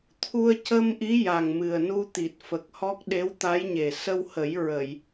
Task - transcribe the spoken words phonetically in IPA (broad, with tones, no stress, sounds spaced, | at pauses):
t̪ʰ u˧ ə̯ c ə˧ m ʔ i˧˥ j a˨˩ ŋ m ɨ˨˩ ə̯ n u˧ t̪ i˨˩ t̚ f ə˨˩ k̚ h ɔ˦˥ k̚ ɗ e˧˥ w t̪ a˧˥ j ɲ e˨˩ s ə˧ w h ə˨˩˦ j ɹ ə˨˩˨ j